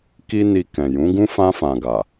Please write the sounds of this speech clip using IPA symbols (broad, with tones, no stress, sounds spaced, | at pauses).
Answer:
k i˦ n i˧ k ɛ̃˨ j ũ˨˦ ɡ ũ˦ f ã˧ f ã˨ ɡ a˨